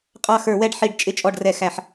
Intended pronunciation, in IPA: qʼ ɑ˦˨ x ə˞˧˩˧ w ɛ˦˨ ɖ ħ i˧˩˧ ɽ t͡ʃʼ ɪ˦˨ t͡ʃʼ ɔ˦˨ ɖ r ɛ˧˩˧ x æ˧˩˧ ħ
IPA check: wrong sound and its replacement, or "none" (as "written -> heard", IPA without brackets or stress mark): ɽ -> ɖ